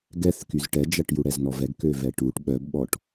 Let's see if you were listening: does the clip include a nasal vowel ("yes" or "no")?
no